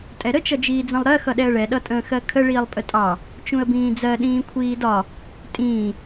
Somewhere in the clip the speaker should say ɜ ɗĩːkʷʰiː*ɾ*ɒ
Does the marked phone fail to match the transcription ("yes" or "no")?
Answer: yes